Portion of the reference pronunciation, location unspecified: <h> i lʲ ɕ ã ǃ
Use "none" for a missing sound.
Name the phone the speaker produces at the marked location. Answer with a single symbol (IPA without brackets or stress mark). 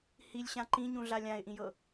h